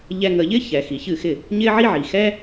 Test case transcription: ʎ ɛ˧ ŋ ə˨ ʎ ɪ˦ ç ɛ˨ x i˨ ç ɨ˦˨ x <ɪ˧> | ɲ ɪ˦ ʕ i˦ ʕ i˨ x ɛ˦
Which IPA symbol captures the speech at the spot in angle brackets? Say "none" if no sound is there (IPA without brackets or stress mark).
ɪ˦˨